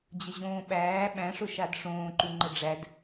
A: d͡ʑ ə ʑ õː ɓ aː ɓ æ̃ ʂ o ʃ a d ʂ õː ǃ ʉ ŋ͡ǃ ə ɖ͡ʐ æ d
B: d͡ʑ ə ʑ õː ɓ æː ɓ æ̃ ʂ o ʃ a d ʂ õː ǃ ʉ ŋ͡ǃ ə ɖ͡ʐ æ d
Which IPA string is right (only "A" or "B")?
B